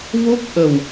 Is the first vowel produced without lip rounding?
no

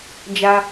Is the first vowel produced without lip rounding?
yes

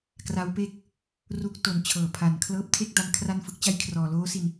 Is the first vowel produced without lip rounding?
yes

